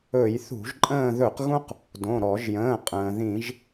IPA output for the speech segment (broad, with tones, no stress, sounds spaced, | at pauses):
ɵ˧˩˧ j θ ṳ˧˩˧ ʒ ǃʼ ə̃ː˦˨ ð ɵ˧˩˧ q ɣ ũ˦ q | d õ˩˧˩ ɾ ɔ˧˩˧ ʒ j ə̃ː˩˧˩ qʼ ə̃ː˩ ð ĩ˧˩˧ ʒ